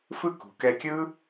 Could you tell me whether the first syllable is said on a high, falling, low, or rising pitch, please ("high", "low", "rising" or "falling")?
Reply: high